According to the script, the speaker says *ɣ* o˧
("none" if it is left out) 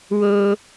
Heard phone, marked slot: w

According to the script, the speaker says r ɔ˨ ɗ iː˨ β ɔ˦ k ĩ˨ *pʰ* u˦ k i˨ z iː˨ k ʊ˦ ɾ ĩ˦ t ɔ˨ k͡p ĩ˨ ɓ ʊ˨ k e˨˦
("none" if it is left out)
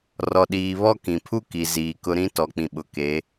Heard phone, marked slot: pʰ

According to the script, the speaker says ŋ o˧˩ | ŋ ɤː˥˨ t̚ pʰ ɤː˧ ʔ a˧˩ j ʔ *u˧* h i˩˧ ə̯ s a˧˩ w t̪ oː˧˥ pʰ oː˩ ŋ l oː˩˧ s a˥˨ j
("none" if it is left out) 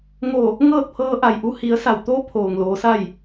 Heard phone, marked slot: u˧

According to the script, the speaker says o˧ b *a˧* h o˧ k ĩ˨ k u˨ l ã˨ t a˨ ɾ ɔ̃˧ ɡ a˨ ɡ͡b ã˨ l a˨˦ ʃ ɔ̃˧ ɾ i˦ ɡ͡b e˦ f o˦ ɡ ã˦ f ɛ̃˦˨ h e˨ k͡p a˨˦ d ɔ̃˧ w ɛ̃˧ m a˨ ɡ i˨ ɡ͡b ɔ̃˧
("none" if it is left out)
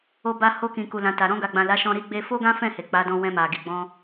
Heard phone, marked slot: a˧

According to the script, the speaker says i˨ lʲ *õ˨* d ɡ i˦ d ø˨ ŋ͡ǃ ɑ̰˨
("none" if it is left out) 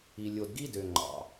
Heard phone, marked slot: o˨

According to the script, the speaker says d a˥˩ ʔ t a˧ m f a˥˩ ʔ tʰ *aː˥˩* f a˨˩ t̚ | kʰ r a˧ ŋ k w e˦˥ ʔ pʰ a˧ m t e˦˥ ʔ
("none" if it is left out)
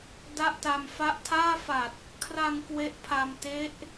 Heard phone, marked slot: aː˥˩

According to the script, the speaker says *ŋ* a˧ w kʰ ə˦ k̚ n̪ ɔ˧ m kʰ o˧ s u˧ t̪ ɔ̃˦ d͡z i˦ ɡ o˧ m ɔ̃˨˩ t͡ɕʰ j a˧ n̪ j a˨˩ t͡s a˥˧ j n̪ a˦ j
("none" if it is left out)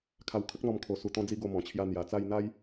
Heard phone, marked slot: kʰ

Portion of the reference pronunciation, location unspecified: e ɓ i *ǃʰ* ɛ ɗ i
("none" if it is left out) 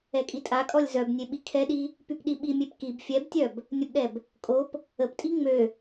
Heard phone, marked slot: kʰ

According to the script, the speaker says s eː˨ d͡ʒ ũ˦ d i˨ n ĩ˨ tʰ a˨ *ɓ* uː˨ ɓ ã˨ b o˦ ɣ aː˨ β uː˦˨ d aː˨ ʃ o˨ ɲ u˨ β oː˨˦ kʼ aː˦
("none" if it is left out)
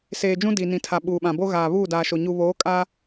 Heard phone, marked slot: ɓ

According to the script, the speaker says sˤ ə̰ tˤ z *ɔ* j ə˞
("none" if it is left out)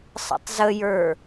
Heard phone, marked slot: ə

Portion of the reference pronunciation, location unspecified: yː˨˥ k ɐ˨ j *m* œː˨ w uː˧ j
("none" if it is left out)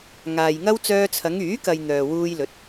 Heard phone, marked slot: n̪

